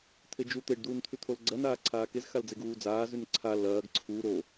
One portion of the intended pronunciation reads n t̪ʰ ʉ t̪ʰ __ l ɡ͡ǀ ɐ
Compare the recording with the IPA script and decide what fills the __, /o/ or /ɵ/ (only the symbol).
o